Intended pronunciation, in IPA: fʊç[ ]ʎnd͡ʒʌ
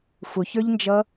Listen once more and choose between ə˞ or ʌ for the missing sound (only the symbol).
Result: ə˞